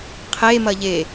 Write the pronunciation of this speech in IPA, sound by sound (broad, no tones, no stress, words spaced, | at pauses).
qʰe mɐʎe